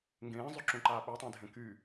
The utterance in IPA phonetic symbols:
ŋɡẽːzˤyǁũǃaː ɓøtˤẽdʱẽ ky

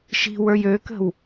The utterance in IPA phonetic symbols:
ʃi̤wə˞j økə̤w

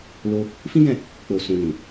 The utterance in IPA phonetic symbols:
lo˧ | fĩ˦ɡɛ̃˦˨ | k͡po˨ sũ˨nĩ˨

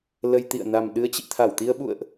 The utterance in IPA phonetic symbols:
lə˧jt̪ḭ˧˨ə̯ na˨˩mɗɨ˨˦ə̯t͡ɕḭ˧˨ t̪ʰa˧˩wt̪i˧ə̯ɓṵ˧˨ə̯ʔ

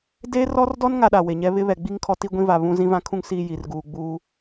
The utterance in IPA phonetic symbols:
de˦rɔ˦rdɔ˦n ŋa˦ɗa˨we˨ɲɛ˦ βɪ˦βɛ˨ ɡ͡bi˦ŋ kʰɔ˦ti˦ɡʷĩ˦va˨ βũ˦zĩ˦vã˦kʰũ˦ŋ siː˨ ji˨rɡuː˨ɡ͡buː˦

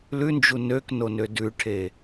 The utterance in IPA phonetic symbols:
lʉnd͡ʒu nøknonø dʉʈʰe

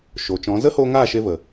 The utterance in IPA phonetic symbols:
ʃo˨t͡ʃɔ̃˨˦ zə˦ho˧ ŋaː˦˨ʃe˧və˨

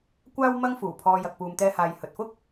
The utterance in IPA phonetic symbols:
kʷaː˥w mɐ˥ŋfuː˨˩pʰɔː˧ jɐ˨k̚puː˨mt̪ɛː˧haː˨j hɵ˨t̚fʊ˥k̚

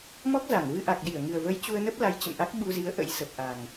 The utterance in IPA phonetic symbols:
mɔ˦˥k̚za˧˩ŋ vɨ˧ ʔa˨˩k̚ɗi˧˩ə̯ŋɨ˨˩ə̯və˨˦j t͡ɕu˧ə̯nə˦˥p̚la˨˦jt͡ɕə̰˧˨m ʔa˦˥k̚ɓu˧zi˨˦ə̯ ʔə̰˧˥j sə˨˩p̚ ʔa˨˩ŋ

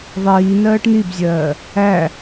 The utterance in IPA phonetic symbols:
ðˤiː nɜːʈnibzʲɜː | æ

